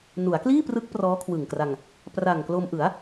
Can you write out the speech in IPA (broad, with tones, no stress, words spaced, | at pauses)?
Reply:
nu˩˦a̯kliː˥˩prɯ˦˥k̚ prɔː˦˥kʰwɯ˨˩ŋkra˧ŋ | pra˨˩ŋklo˧mʔɯ˩˦a̯